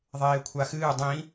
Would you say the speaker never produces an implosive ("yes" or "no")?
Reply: yes